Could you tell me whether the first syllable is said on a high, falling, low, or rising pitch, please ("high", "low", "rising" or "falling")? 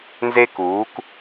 high